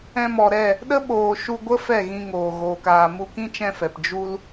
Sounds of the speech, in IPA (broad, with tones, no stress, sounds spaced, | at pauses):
ɛ̃˧ m ɔ˨ ɾ ɛ˦˨ | ɗ ə˦ ɓ oː˨ ʃ u˧ ɡʷ ə˦ f ɛ˦˨ ɣ ĩ˧ ŋ oː˨ ɣ oː˨ k aː˨ m u˧ k ĩ˦ t͡ʃ ɛ̃˧ f ɛ˨ p d͡ʒ u˦ l